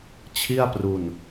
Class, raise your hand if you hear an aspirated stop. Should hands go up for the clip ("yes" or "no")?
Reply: yes